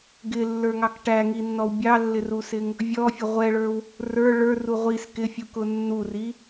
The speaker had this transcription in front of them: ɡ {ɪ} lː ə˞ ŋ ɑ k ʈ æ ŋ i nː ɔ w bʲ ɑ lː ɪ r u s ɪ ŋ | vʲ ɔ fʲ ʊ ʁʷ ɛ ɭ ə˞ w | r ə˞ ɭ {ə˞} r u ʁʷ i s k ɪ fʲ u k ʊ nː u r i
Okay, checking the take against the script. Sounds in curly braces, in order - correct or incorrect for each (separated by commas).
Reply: correct, correct